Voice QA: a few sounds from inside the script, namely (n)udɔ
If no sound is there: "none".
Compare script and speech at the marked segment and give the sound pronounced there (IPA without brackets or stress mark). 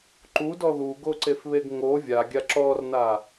ǃ